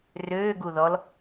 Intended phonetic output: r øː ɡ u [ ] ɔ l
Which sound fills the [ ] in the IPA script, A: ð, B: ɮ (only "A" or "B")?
A